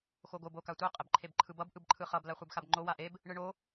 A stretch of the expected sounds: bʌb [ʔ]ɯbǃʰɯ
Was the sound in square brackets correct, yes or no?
yes